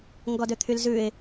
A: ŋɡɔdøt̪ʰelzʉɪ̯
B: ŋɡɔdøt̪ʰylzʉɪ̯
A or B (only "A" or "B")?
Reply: B